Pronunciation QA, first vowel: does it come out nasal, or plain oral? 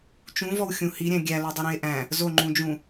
nasal